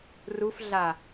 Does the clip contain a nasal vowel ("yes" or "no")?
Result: no